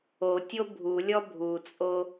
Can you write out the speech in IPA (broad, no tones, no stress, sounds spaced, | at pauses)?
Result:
o tʲ o bʱ u lʲ ɔ bʱ u t͡sʼ o